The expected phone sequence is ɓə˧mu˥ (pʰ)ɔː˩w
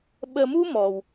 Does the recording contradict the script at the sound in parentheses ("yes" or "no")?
yes